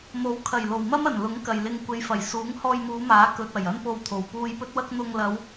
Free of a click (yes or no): yes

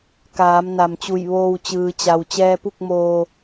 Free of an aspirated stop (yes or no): yes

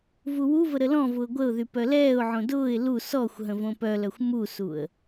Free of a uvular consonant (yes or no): yes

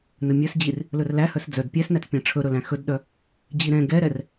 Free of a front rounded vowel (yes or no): no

